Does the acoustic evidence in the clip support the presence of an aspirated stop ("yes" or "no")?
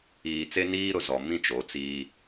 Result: no